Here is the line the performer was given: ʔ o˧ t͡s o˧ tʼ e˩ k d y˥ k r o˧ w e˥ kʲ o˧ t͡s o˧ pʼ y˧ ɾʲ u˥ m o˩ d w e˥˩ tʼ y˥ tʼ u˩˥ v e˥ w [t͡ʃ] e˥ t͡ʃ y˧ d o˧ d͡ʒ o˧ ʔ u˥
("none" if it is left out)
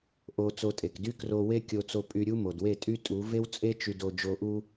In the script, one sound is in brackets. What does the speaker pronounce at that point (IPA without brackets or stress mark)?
t͡sʼ